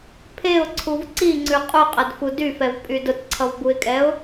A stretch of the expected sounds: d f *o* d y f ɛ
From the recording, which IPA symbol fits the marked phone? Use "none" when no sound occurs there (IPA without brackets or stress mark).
u